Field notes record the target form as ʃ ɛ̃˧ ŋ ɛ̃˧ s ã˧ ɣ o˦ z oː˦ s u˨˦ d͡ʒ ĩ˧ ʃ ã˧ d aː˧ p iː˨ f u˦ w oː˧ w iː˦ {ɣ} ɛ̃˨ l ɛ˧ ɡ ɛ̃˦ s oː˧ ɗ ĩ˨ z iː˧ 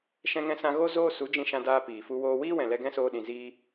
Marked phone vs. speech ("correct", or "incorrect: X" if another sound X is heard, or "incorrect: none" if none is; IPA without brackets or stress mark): incorrect: w